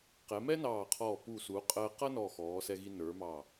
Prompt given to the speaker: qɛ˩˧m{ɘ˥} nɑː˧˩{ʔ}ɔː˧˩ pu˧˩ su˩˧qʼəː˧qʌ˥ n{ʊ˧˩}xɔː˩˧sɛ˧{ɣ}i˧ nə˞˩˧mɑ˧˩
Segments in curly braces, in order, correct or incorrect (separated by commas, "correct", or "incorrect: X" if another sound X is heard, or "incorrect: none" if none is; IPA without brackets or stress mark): incorrect: ɛ˥, incorrect: qʰ, incorrect: ɔ˧˩, correct